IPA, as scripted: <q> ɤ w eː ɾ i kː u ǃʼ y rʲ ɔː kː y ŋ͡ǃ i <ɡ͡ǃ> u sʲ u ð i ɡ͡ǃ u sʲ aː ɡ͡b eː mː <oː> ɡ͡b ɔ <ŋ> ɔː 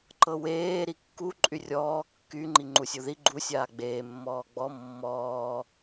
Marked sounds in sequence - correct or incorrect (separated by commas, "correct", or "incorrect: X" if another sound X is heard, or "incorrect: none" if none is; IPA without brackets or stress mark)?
incorrect: ǃ, incorrect: ŋ͡ǃ, incorrect: ɔː, incorrect: mː